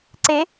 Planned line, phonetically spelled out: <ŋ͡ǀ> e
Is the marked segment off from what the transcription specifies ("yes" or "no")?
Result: yes